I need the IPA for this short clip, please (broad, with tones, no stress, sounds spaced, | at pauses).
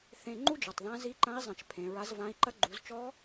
θ ẽ˧ ŋ͡ǃ u˥ d͡ʒ ɔ˩ tˤ ð ã˧˥ z i˧˥ ǃ ɐ̃˧˥ i̯ zˤ ɐ̃˩˧ t͡ʃ pʰ ẽ˩˧ ɹ a˧˥ z v ã˧˥ i̯ ǃ ɐ˥ ɡ͡ǃ u˩˧ z t͡ʃ ɔ˧˥